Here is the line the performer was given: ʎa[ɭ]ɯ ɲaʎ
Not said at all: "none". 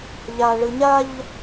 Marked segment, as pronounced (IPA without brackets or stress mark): ɭ